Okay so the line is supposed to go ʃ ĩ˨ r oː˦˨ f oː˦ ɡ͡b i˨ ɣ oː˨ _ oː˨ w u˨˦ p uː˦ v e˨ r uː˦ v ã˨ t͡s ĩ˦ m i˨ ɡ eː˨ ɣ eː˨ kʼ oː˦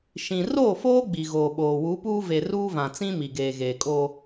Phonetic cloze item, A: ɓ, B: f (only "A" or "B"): A